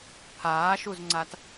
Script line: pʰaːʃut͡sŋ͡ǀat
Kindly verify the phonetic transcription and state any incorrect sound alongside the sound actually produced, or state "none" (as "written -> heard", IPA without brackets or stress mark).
t͡s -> z